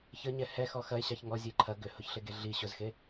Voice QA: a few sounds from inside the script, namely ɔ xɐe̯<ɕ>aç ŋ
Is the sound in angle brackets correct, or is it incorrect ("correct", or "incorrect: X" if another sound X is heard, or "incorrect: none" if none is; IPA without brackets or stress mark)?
correct